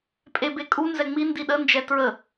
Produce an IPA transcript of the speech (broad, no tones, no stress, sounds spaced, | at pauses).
pʼ e b e kʼ u n z ɛ ŋ͡m i n d i ɗ ə n d͡ʒ ɛ t ɹ ə